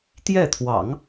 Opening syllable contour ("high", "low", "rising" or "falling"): falling